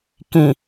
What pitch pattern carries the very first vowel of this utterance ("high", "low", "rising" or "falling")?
low